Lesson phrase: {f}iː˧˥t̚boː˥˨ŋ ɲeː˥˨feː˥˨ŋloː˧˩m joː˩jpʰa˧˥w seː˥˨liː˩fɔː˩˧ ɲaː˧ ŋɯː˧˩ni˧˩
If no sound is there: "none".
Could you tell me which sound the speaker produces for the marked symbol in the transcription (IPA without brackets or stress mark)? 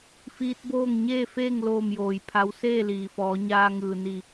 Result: f